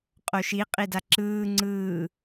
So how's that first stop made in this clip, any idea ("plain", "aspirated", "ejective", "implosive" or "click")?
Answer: ejective